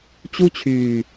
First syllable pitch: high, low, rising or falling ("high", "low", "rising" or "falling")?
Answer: high